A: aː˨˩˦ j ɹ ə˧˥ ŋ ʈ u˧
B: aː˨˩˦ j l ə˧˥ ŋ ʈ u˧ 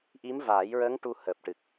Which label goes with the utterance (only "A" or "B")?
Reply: A